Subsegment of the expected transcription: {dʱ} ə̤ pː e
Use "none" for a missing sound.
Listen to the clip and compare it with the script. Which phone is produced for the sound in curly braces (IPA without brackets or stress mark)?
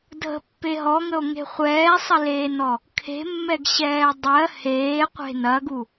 dʱ